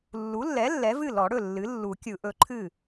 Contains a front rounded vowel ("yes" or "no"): no